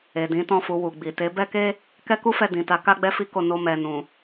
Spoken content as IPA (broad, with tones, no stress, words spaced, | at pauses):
e˨dĩ˨˦tɔ̃˦˨fu˧ wu˨ɡ͡bi˨ te˨˦bɛ˦ke˦ | kɛ˦ku˦fɛ˧ dĩ˨ta˨˦ ka˦ɡ͡bɛ˦fi˦ko˧ no˧mɛ˨nũ˨